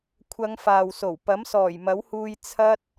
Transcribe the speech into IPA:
kʷʰ ɐ˨˧ ŋ f aː˨ w s o˨˩ w p ɐ˨˥ m s ɔː˨˩ j m ɐ˨˥ w h uː˧ j t͡sʰ ɐ˥ t̚

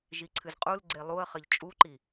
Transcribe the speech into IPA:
ʒ i ǀʰ ɨ z qʼ u l ɡ͡ǀ e lˠ u ə̯ χ ɘ ʎ t͡ʃʼ u ǃ i

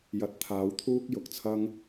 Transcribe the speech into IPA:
j ɐ˨ t̚ t̪ʰ aː˨˧ w t̪ʰ uː˥ k̚ j ʊ˨ k̚ t͡sʰ ɐ˥ ŋ

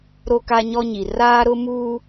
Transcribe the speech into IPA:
ɾ o˦ k a˦ ɲ ɔ˦ ɲ i˨ r aː˦ ɾ ʊ˦ m uː˦

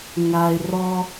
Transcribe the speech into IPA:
ŋ a˧ ɪ̯ r ɔ˧

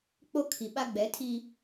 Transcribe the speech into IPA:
k͡p o˦ kʰ i˨ ɓ a˦ ɡ͡b ɛ˨˦ tʰ i˦

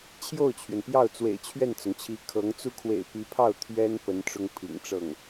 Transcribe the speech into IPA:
t͡ɕʰ j o˥˩ ʊ̯ t͡ɕʰ ɥ ɛ˩ n p j ɑ˥˩ ʊ̯ t͡s w ḛ˨˩ ɪ̯ t͡ɕʰ ɥ ɛ˥˩ n t͡s ʊ˩ ŋ t͡ɕʰ i˧˥ kʰ ɤ˧˥ ŋ t͡s u˥ kʰ w ḛ˨˩ ɪ̯ p i˧˥ pʰ ɑ˥˩ ʊ̯ t̪ʰ ɥ ɛ˥ n p ə˧˥ n ʈ͡ʂ ʊ˥ ŋ pʰ ḭ˨˩ ŋ ʈ͡ʂ ɤ˥˩ ŋ

